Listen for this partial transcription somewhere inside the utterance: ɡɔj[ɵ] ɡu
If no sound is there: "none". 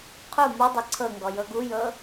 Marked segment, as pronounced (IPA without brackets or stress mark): ɤ